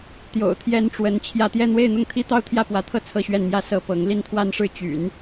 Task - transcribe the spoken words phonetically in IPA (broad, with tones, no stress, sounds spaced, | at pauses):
t̪ j o̰˨˩ ʊ̯ t̪ʰ j ɛ˥ n ʈ͡ʂ w ə˧˥ n t͡ɕʰ j ä˥˧ t̪ j ɛ˥˧ n̪ w e˥˧ ɪ̯ n̪ ʊ˥˩ ŋ t̪ʰ i˥ t̪ ɑ˥˧ ʊ̯ t̪ʰ j ä˥˩ p w ä˧˥ t̪ʰ ɤ˥˧ t͡sʰ ɤ˥˧ ɕ ɥ ɛ˥˧ n m j ä˥˧ s ɤ˥˩ p ɤ˧˥ ŋ l i˥˧ n t̪ʰ w a˥˧ n ʂ ɻ̩˥˩ t͡ɕ y̰˨˩˦ n